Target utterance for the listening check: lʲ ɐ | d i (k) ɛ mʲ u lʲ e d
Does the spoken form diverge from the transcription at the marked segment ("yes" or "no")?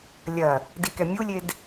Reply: no